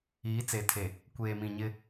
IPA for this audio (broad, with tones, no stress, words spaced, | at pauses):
iː˨˦t͡se˨tʰe˨ | kʷeː˨mĩ˨ɲɪ˦